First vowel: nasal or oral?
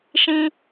nasal